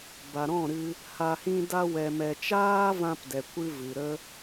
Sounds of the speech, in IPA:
b a˨ ɾ ɔ̃˦˨ ɾ ɨ˧ | h a˧ h ĩ˦ d a˦ w ɛ˧ m ɛ˧ t͡ʃ aː˦ v ã˧ p d ɛ˨ kʷ ɨ˧ v ɨ˨ ɾ ə˦

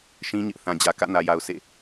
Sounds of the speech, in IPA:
ʃ ĩ˦ ɲ ɪ˦ ʔ θ ã˨ d͡ʑ ä˨ k ä̰˦˨ n ä˨ j a˨ ʊ̯ sʰ ḛ˦˨

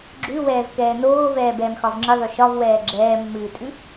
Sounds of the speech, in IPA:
ɡ͡ǁ ʉ w ɛː v k ɛː n oː v ɛː b ɛː m x ɒ v ŋ͡ǁ ɨ ðˤ ʉ ʃ ɒ v w ɛː ɡ͡ǁ ɛː mː ɨː tʼ ʉ

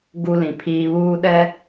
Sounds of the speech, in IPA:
ɡ u˦ l ĩ˨ pʰ iː˦ β uː˦ ɗ ɛ˦

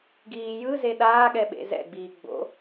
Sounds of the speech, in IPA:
ɡ iː j ɯ z e ɗ aː ɠ ɛ ɓ ḛ z ɛ̰ ɡ͡b iː ɡ͡b o̰

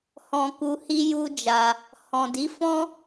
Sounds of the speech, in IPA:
h ɔ̃˨ k u˧ h i˦ j u˦ d͡ʒ a˧ | h ɔ̃˨ d i˨˦ f ɔ̃˦

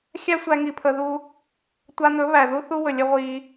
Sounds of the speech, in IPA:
xʲ æ˦ sʷ æ˧ ŋ i˨ pʰ ə˨ ð u˧ | tʷ a˧ n̪ ɵ˨˦ β æ˨ ð u˦ θ u˦ w ɵ˨ lʲ ə˧ ʁʷ i˧

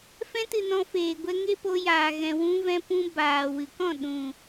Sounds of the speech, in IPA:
f ɛ̃˧ t ɨ˨ n ɔ̃˧ f eː˨ ɡʷ ɛ˧ ŋ e˦ p o˧ j aː˨ ɣ ɛ̃˨ w ũ˧ v ɛ̃˧ p ũ˧ b aː˨ w ɨ˨ k ɔ̃˦˨ ɗ ũ˨

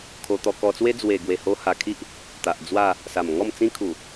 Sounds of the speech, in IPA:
kʰ o˧ t̪ ɔ˧ k ɔ˧ t͡s w e˦ d͡z w e˨˩ ɡ w e˨˩ h o˧ h a˨˩ kʰ i˦ ʔ | t̪ a˨ ʔ d͡z w a˥˧ | s a˨˩ m ŋ ɔ˥˧ m t͡s ĩ˦ kʰ u˨˩

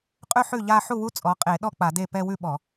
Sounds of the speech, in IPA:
qʼ ʉ˥˧ ħ ʉ˥˩ ʎ a˥˧ ħ u˥˩ w u˦˥ t͡sʼ ɔ˩˧˩ qʼ e˧˩˧ ɗ ɔ˥˩ k͡p a˧˩˧ d e˥˩ p ɛ˥˧ w ʉ˥˩ ɓ ɔ˧˩˧

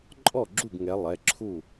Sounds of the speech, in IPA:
ǃʼ ɔ˥˨ ɡ͡ǁ u˥˨ ɡ ŋ ɛ˨˦ lˠ ɛ˩˧˩ ǁʰ u˥˨

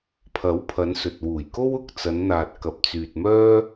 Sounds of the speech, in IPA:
pʰ ɐ˨˥ w pʰ ɐ˨˧ n s ɵ˨ t̚ w uː˨˩ j k o˥ w ʊ˨ k̚ t͡s ɐ˨˧ n n̪ aː˨ t̚ k ɐ˨ p̚ t͡s yː˨ t̚ m œː˥

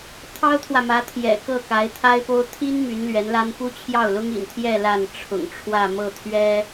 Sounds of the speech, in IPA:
t̪ʰ ɑ˥ ʊ̯ t̪ʰ w ä˨ m ä˧˥ t̪ʰ j ɛ̰˨˩ k ɤ˥˩ k a˧˥ ɪ̯ t̪ʰ a˥ ɪ̯ p o˥ ʊ̯ t̪ʰ i˥ n m y˧˥ n l ɥ ɛ˧˥ n l a˥ n p u˥ t͡ɕʰ j ɑ˥˩ ʊ̯ l ʊ˥ ŋ ḭ˨˩ n t̪ʰ j ɛ˥˧ l a˥˩ n ʈ͡ʂʰ ʊ̰˨˩ ŋ ʈ͡ʂʰ w ä˥˧ m ɤ˥˩ t̪ʰ ɥ ɛ˥

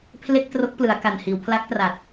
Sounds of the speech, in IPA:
pʰ l e˥˩ k̚ t r o˦˥ k̚ p l ɯ˩˦ a̯ k a˨˩ n h iː˩˦ w pʰ l a˦˥ k̚ t r a˨˩ t̚

